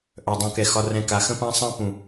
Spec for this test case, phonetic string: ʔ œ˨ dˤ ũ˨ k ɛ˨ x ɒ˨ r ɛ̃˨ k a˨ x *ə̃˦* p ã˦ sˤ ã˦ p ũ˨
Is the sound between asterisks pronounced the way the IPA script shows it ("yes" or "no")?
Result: yes